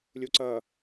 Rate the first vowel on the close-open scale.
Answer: close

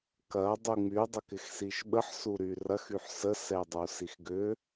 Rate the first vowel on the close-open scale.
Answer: open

